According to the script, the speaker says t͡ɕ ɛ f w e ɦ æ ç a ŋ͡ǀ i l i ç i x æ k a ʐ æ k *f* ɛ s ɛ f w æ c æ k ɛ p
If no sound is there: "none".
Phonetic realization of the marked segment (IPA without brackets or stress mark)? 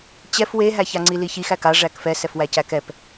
f